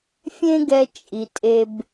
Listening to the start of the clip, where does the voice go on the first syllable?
high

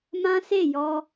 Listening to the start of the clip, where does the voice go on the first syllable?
high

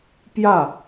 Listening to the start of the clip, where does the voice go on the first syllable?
falling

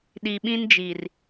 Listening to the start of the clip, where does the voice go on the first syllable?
low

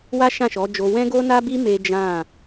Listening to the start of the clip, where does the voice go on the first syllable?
high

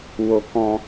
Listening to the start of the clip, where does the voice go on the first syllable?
low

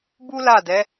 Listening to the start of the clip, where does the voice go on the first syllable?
high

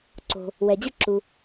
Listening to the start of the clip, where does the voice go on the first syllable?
low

